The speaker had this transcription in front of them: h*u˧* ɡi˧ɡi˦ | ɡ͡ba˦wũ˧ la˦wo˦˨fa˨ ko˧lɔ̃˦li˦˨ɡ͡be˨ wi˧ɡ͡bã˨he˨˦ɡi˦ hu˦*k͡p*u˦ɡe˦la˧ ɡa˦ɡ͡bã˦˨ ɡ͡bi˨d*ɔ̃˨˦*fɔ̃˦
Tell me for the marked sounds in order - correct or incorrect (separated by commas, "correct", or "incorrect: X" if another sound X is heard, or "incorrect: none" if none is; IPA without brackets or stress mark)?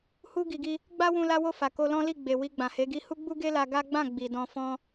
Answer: incorrect: u˦, incorrect: ɡ͡b, incorrect: ɔ̃˧